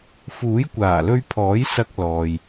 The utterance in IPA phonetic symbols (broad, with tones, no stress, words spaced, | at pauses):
fuː˨˥jkʷaː˨˩lɵ˧ɥpʰɔː˨˥j sɐ˧k̚ lɔː˨j